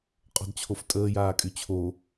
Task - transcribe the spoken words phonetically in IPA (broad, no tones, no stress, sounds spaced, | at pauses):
qʼ ɔ̤ d t͡ɕʰ o f tʼ əː j aː kʼ y t͡ɕʰ o